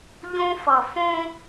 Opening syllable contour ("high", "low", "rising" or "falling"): high